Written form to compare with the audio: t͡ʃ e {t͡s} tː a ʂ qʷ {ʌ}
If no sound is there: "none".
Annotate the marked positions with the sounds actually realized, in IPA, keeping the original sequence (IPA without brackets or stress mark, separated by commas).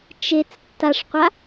t͡s, a